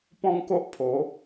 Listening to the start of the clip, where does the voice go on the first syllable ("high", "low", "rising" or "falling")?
high